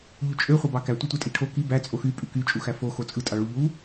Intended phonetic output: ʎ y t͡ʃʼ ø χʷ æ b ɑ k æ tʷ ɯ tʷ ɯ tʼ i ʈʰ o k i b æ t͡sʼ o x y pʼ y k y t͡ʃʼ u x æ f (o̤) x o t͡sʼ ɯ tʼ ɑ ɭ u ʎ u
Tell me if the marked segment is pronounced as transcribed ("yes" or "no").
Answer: no